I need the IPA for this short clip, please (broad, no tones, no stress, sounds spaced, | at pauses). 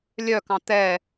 lʲ œ k ɑ̃ t̪ ɛ